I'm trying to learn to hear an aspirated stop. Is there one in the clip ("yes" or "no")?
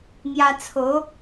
yes